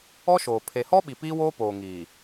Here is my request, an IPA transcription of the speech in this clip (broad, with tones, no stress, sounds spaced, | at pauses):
ɔ˦ ʃ oː˨ pʰ e˨ h ɔ˦ ɓ i˨ p iː˦ w oː˦ p oː˨ ŋ iː˨